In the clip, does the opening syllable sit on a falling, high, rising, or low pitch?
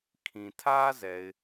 low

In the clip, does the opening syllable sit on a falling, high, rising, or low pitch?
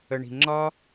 low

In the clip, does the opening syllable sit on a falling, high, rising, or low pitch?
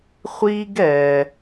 high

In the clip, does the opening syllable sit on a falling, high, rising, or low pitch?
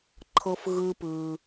high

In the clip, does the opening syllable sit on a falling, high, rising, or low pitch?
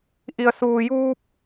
low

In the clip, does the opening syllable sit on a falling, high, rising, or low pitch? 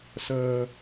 low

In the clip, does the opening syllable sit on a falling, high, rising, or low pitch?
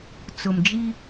low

